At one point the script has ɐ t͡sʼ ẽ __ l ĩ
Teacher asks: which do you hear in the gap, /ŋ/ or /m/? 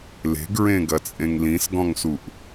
ŋ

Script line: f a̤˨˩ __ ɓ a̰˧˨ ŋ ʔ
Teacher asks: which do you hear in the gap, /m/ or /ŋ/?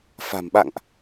m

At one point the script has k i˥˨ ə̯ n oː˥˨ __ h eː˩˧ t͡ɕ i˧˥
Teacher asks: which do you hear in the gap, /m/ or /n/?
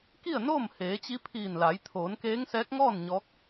m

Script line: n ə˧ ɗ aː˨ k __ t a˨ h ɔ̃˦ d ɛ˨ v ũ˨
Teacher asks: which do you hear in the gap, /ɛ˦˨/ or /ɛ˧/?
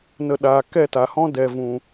ɛ˦˨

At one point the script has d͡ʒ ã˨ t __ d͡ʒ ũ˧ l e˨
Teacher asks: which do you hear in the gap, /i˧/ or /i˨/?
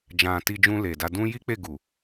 i˧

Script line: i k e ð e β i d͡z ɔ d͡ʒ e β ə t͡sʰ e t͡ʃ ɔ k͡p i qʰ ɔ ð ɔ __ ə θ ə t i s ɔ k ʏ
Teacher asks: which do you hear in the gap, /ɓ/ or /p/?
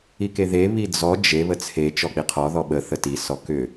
ɓ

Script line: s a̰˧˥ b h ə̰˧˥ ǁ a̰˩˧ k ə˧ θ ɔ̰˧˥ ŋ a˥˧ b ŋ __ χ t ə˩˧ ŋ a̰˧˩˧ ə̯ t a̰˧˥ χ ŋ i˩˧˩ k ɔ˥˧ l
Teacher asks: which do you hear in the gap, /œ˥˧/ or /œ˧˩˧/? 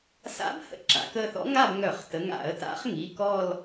œ˧˩˧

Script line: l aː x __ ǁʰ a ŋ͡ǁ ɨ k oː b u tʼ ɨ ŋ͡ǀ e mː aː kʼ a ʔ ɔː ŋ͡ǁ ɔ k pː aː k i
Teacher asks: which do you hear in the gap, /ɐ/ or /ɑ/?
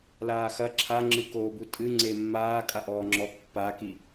ɐ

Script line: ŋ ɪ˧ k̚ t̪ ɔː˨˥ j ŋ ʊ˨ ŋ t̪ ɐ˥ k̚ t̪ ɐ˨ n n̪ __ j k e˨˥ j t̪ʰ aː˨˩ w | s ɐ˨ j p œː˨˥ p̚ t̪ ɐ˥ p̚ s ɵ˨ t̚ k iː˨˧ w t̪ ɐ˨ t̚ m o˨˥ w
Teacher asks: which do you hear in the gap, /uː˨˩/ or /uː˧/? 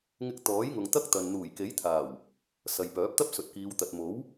uː˨˩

